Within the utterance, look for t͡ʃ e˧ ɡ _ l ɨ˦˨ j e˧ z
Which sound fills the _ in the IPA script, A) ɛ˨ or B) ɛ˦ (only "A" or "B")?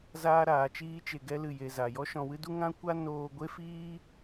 B